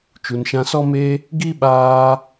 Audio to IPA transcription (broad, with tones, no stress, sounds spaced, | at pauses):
t͡ʃ u˨ n ʃ ã˧ s ɔ˦ m e˧ | ɡ i˦ ɓ aː˧